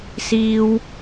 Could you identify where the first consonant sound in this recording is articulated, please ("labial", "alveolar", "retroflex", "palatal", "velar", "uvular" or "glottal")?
alveolar